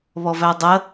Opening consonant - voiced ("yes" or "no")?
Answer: yes